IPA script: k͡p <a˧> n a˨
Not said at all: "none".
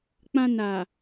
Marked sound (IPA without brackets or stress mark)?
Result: ã˧